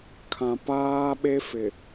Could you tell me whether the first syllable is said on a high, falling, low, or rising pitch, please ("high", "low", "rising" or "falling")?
low